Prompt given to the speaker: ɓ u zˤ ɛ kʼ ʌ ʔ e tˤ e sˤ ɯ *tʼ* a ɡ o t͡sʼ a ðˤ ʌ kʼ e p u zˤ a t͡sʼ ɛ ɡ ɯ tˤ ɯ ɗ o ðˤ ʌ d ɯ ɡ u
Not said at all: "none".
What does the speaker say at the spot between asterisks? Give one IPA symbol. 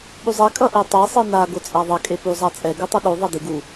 n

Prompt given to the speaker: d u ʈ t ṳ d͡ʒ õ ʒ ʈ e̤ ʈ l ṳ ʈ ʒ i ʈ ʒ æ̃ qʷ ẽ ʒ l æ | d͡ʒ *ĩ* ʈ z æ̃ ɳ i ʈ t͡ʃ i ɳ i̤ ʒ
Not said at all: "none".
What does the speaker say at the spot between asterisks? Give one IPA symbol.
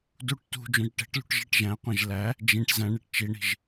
ĩ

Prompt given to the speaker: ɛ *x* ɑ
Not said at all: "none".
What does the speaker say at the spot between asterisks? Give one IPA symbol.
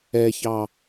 ç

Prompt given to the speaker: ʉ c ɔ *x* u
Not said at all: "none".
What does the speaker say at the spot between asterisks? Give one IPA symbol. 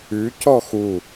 x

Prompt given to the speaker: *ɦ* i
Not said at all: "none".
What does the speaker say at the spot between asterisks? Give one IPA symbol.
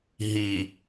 ɦ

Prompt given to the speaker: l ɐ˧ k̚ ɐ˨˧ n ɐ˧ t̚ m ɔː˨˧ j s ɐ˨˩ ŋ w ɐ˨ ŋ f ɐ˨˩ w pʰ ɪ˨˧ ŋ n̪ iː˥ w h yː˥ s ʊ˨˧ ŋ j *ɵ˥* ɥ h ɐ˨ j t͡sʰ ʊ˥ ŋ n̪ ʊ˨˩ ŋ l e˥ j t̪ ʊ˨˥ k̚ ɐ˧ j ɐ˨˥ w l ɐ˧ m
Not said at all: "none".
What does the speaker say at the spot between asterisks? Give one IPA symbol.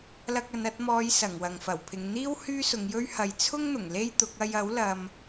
ɵ˥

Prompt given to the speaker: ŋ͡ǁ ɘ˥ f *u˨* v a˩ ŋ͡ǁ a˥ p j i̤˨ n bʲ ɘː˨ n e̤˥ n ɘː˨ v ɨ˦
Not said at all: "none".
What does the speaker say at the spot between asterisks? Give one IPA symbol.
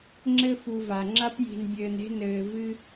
u˨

